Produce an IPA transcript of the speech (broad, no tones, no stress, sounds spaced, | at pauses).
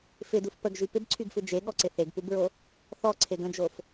f ɪ d u f p ə ɡ ʒ y p ɪ b ǀʰ y ɡ f ɯ d͡ʒ e ɠ ɔ ǀ ɪ θ e ɡ p u b ɹ o | θ ɔ ǀʰ e ɡ ə̃ d͡ʒ o f